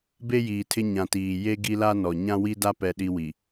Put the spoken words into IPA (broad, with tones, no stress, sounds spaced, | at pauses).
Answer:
b e˦ j iː˨ tʰ ɪ˦ ɲ ã˨ t iː˨ j e˦ ɡ i˦ l a˦ n ɔ˨ ɲ ã˦ w i˦ d a˦ p ɛ˦ ɗ i˦ w i˨